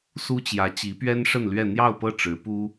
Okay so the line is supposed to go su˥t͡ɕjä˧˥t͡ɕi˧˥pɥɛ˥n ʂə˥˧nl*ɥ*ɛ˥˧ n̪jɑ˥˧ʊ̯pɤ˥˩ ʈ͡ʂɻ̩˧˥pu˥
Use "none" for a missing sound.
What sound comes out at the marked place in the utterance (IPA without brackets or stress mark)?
ɥ